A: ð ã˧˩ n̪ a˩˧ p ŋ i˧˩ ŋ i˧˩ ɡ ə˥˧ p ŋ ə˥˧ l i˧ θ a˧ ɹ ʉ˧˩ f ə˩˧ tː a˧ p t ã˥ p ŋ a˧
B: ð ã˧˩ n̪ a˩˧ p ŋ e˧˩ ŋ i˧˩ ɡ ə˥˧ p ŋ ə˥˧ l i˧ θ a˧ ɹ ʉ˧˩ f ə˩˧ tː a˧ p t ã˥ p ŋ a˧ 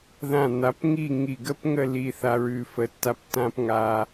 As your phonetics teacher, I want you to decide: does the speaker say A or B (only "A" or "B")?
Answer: A